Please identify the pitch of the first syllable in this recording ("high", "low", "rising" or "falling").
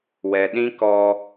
low